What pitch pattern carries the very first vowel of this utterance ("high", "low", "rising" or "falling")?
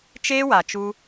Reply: high